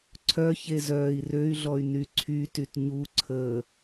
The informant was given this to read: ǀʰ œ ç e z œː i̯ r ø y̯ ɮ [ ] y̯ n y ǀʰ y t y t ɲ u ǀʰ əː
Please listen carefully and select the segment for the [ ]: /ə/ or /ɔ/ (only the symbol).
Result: ɔ